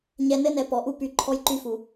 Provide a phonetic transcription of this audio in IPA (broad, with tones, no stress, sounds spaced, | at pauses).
ɲ ɛ˨ n ɘ˦ n ɛ˨ p ɔ˨ ʔ u˦ p y˨˦ ǃʰ ɔ˦ j ǃ y˦ f u˨